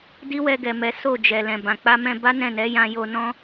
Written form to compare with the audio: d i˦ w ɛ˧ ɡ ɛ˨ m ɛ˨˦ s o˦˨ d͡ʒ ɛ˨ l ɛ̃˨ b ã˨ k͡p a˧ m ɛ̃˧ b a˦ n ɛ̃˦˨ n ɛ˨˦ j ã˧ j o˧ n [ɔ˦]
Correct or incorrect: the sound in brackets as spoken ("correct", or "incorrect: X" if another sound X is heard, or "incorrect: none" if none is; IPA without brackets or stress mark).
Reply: incorrect: ɔ̃˦